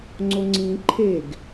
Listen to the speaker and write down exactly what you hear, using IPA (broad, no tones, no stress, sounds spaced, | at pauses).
ŋ͡ǀ o ŋ͡ǀ ĩ ǃʰ e ɡ